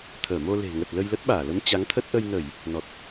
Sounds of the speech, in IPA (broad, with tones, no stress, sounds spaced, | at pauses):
t̪ʰ əː˧˩ m o˧ l e̤˨˩ ŋ ə˨˩ t̚ l ə˧ j l ə˦˥ t̚ ɓ aː˧˩ l ə˨˦ m t͡ɕ a˨˦ ŋ t̪ʰ ə˦˥ t̚ ʔ ə˧ j n ə˧˩˨ j | n ɔ˨˩ t̚